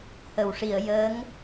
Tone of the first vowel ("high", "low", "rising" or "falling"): low